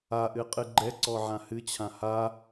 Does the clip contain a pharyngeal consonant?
yes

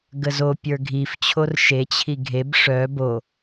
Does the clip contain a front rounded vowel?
yes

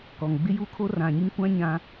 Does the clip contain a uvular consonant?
no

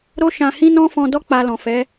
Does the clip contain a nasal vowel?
yes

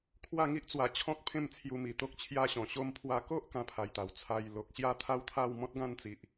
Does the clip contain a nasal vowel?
yes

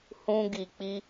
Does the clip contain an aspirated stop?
no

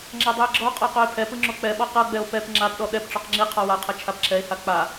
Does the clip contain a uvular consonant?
yes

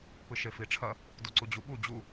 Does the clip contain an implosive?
yes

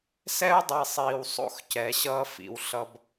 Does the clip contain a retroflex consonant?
no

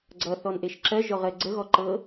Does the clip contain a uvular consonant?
yes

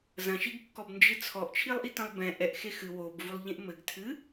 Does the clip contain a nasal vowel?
yes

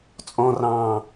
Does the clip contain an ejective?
yes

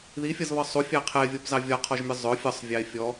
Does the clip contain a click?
no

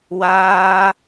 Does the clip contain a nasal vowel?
no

